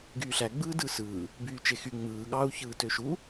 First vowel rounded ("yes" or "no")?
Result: yes